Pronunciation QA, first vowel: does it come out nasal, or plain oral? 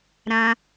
nasal